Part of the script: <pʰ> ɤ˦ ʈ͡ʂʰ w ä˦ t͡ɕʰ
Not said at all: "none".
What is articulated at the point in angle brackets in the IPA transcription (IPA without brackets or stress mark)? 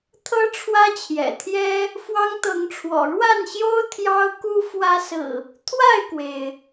t̪ʰ